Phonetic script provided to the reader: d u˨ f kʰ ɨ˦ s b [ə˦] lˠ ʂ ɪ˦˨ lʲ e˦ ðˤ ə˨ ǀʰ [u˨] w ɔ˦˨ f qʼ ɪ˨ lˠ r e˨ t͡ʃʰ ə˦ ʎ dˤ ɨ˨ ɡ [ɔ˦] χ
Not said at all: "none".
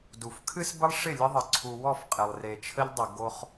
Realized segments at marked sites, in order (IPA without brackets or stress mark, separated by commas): ə˦, u˨, o˦